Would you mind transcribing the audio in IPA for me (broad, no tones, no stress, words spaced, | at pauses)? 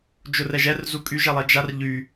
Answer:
d͡ʒʊrɛʒɛr zukʼyʒ ɛlˠɛd͡ʒar ʎy